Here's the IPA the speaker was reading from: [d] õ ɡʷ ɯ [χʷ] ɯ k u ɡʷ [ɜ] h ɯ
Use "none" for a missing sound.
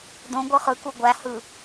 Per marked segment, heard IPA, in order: d, χ, æ

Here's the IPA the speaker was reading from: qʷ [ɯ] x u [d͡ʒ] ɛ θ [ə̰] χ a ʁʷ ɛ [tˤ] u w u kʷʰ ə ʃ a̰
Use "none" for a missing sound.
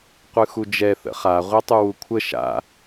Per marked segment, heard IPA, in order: ɯ, d͡ʒ, ə̰, tˤ

